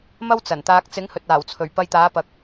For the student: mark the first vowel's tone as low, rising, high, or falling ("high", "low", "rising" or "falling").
high